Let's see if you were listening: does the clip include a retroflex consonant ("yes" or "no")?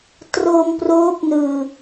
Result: no